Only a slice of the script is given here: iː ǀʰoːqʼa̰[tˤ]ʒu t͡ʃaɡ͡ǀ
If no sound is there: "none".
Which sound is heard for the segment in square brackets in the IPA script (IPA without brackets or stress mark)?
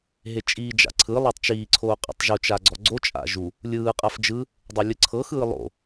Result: tˤ